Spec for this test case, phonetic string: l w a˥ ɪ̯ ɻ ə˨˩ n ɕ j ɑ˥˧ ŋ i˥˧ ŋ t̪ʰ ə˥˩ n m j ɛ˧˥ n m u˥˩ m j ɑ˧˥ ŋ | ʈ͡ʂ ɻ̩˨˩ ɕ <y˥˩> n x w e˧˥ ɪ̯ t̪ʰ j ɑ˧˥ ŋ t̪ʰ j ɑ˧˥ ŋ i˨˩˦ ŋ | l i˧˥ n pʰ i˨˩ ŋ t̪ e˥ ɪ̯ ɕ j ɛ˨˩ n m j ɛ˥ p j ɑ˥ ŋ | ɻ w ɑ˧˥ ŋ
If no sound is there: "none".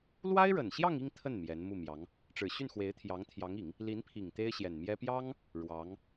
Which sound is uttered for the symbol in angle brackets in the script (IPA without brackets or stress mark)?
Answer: y˥˩